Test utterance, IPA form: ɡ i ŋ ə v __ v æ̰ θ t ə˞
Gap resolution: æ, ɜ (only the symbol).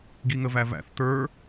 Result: æ